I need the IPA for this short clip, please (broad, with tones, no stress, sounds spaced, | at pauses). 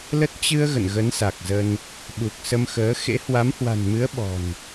l ə˦˥ t̚ t͡ɕ ɨ˧ ə̯ ɣ ə̰˧˨ n ɣ ə˨˦ n s a˨˩ k̚ z ə˧ n | ɓ u˨˩ k̚ s ə˧ m x əː˨˦ x ḛ˧˥ h w a˨˦ m h w a̤˨˩ n m ɨ˨˦ ə̯ ɓ ɔ̤˨˩ n